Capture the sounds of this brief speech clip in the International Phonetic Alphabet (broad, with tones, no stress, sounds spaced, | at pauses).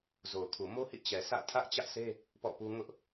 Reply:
z o˨ ʊ̯ kʰ u˨ m o˦ h ḭ˦˨ t͡ɕ ɛ˨ sʰ ä̰˦˨ tʰ ä˦ ʔ t͡ɕ ä˦ ʔ sʰ e˦ | p ɔ̰˦˨ p u˦ ŋ ʊ˦ ʔ